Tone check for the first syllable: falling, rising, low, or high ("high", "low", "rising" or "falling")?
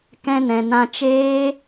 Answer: high